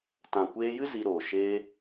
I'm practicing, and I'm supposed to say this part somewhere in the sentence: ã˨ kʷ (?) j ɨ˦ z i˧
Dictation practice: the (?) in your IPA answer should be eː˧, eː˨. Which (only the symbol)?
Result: eː˧